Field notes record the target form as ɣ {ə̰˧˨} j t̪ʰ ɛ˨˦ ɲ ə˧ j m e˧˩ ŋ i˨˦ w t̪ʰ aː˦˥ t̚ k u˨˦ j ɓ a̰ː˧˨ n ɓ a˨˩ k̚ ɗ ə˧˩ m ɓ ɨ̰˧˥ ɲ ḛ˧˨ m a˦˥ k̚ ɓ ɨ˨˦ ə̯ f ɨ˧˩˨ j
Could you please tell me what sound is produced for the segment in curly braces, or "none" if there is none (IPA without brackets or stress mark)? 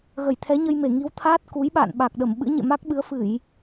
ə˧˩